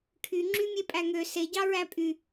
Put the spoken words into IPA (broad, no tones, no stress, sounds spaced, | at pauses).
kʰ y ŋ͡ǁ y mʲ e pʼ æ ŋ ø s e ɟ ɑ ɹ æ pʼ y